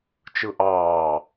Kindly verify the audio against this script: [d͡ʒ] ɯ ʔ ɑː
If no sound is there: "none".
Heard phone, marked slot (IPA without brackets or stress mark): t͡ʃ